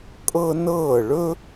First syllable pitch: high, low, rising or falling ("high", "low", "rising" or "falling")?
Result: high